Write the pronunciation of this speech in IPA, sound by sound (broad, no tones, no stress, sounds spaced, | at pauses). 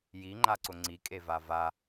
j i ŋ͡ǃ a ǀ ʊ ŋ͡ǀ i kʼ e v a v a